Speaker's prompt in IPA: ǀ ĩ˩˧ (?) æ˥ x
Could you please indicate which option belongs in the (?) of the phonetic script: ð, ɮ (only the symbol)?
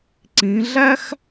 ɮ